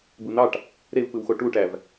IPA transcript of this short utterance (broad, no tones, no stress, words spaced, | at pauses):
bɯn̪ɑʈ | ɾevpɯwxo ʈuʈæv